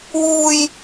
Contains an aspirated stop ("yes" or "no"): no